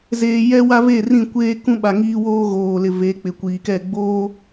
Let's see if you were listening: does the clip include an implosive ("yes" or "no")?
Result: yes